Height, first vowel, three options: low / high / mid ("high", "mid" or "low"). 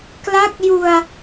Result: low